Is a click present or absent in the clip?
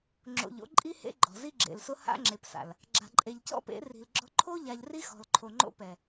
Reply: present